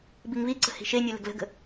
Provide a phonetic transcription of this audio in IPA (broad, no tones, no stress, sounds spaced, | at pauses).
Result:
b i ŋ β i ǀ ə̤ h i̤ ʃ e nʲ ʉ l ə̤ ɡ l ə̤ ɡ ə̤